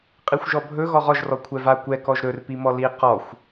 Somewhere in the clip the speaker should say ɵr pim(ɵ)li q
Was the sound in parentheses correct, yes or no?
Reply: no